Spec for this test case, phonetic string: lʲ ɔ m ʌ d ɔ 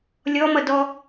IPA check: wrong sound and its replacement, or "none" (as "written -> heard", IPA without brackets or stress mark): none